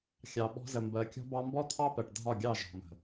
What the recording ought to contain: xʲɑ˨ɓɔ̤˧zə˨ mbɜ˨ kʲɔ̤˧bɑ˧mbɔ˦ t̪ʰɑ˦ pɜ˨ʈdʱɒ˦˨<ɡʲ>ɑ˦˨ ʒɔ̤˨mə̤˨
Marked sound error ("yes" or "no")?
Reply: no